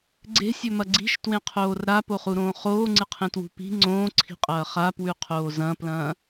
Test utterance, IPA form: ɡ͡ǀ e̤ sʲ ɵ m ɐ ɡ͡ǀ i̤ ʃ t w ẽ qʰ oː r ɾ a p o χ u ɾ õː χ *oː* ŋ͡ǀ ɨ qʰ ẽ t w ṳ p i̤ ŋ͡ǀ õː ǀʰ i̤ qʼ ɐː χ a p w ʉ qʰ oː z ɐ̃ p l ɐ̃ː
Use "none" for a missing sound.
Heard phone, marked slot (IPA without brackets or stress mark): oː